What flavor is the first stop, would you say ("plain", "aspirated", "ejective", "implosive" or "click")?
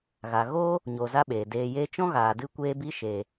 implosive